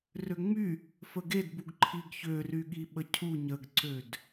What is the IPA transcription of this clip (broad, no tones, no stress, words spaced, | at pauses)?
røŋ͡my | fəɡedbuɡ ǃʰiɡçø ryɠiɓəcʰu ɲəɡǀød